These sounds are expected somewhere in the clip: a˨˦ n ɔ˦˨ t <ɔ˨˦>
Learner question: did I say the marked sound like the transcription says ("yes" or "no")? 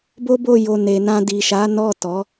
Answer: yes